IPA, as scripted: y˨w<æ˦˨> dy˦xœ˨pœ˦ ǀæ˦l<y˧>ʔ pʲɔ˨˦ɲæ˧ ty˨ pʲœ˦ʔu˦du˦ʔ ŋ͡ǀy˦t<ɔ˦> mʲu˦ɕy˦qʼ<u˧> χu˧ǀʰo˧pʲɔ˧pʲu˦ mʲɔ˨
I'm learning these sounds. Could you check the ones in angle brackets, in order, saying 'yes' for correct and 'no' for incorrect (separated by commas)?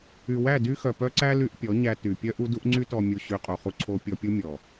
yes, yes, no, yes